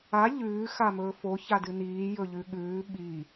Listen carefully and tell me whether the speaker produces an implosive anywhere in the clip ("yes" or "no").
yes